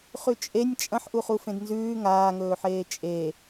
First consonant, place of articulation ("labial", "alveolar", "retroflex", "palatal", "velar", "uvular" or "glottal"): uvular